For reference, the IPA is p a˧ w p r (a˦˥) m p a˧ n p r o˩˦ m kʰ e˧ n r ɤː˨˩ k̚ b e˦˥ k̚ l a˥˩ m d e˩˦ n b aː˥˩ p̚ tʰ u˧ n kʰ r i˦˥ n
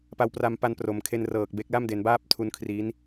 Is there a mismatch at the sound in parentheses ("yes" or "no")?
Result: yes